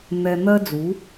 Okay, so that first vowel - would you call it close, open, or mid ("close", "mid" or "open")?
mid